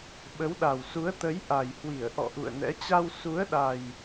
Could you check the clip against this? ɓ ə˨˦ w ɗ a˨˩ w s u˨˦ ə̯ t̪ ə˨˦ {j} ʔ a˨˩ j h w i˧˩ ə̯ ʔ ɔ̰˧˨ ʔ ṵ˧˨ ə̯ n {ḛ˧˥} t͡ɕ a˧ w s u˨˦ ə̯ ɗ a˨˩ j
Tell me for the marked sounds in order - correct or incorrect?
correct, incorrect

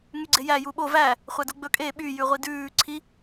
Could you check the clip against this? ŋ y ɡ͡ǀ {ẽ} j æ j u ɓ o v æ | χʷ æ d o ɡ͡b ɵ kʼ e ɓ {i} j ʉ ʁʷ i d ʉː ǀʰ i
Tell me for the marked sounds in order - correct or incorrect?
incorrect, incorrect

